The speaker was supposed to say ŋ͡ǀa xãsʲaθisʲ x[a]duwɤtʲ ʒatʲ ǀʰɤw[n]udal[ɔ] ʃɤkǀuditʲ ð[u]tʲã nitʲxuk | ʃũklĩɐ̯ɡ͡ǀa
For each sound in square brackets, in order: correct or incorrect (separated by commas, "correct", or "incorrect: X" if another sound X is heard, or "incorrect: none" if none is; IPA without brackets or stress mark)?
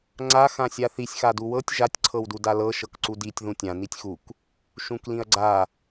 correct, incorrect: d, incorrect: ɤ, incorrect: ũ